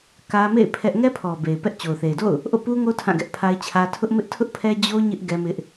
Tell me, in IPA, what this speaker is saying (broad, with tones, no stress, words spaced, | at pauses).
kä˦ mḛ˦˨ɪ̯ pʰɛ˦ʔ ŋɛ˦pʰɔ˨ be˨ɪ̯ pɛ˦ʔ t͡ɕo˨ʊ̯θe˨ɪ̯do̰˦˨ʊ̯ | ʔo̰˦˨pu˦ŋo˦ tʰã˦˨ɡɛ˦ʔpʰa˦ɪ̯t͡ɕʰä˦ tʰʊ˦ʔmɪ˦ʔtʰʊ˦ʔpʰɛ˦ d͡ʑo˦ ɲɪ˦ʔ ɡɛ˦mɪ˦ʔ